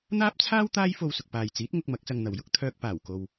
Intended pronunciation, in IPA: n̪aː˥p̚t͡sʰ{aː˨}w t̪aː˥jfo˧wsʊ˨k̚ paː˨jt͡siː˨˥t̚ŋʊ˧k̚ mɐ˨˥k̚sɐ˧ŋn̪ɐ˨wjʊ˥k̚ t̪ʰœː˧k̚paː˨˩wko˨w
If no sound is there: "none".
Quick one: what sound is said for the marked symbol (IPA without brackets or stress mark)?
aː˥